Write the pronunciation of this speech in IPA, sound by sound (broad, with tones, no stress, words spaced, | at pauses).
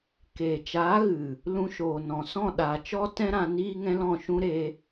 keː˨t͡ʃaː˨˦ɣɨ˨ | lũ˧ʃoː˨nɔ̃˨sɔ̃˦˨ ɗa˨ t͡ʃɔ˦tɛ̃˦ɾã˧ niː˦ŋɛ̃˦lɔ̃˦˨ʃũ˦ ɾe˧